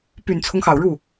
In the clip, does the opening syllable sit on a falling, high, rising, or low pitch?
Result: low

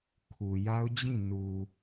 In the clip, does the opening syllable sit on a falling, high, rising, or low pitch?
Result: low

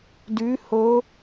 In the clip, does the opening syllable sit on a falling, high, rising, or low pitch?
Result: rising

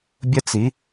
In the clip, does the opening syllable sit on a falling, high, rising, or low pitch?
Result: high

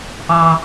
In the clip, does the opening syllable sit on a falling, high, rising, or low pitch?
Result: low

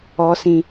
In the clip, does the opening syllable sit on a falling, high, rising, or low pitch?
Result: high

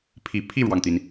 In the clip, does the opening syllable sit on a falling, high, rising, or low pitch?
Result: low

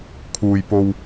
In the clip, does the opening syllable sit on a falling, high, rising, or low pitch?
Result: low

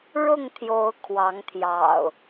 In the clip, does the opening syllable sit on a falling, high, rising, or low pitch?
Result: falling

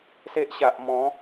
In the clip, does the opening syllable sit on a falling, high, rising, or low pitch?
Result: high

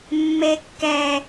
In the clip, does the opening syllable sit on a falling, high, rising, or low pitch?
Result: high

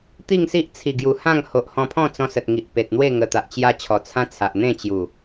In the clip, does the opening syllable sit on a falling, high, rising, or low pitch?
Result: falling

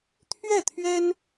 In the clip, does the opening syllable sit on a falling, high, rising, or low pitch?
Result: falling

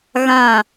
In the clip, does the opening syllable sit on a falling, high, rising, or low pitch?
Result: falling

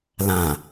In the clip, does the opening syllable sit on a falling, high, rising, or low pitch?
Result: low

